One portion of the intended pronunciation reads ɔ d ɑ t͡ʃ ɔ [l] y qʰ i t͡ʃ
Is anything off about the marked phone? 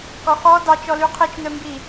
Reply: no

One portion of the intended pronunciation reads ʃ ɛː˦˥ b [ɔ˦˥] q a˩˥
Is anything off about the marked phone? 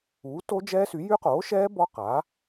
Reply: no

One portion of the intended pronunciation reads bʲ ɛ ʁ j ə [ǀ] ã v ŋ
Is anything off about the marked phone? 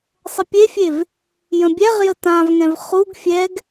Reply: yes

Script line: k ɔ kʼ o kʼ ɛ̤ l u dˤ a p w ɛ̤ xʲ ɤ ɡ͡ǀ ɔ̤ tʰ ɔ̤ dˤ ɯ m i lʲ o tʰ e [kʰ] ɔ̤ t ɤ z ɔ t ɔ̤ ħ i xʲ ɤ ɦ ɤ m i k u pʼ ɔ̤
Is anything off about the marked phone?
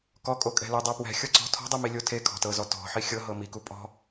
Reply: no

